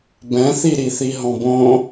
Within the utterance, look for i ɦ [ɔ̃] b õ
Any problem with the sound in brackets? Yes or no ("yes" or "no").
no